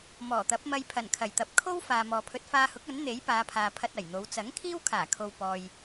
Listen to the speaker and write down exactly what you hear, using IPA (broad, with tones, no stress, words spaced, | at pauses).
mɔː˨˩t̪ɐ˨˥p̚ mɐ˧jpʰɐ˨˩nkʰɐ˨˩jt̪ɐ˨p̚ kʰo˥w faː˨mɔː˨pʰɵ˧t̚ faː˧hʊ˨˥k̚ ɐ˨˥nn̪e˨˥j paː˨˧pʰaː˨pʰɐ˧t̚ ɐ˨˩jn̪o˨˧w t͡sɐ˨˥ŋkʰiː˥wkʰaː˨˩kʰo˨w pɔː˨j